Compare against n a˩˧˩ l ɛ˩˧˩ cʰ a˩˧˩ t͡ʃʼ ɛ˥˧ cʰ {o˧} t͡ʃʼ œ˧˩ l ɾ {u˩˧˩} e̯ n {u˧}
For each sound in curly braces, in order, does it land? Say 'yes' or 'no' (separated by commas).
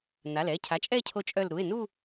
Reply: yes, yes, no